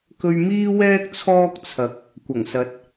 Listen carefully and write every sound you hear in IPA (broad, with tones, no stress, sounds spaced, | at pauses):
k ɵ˧ ɥ m iː˥ w ɛː˥ k̚ t͡sʰ ɔː˥ k̚ t͡sʰ ɐ˨˥ k̚ | kʷ ɐ˨˩ ŋ s ɐ˨˥ t̚